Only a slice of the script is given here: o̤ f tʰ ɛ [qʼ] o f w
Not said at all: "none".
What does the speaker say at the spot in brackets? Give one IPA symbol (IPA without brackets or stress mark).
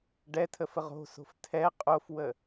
qʼ